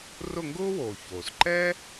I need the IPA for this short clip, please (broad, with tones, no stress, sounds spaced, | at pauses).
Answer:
r ʊ˦˨ ŋ ɡ ʊː˥ w oː˩ ç oː˩ s ǃ ɛ˥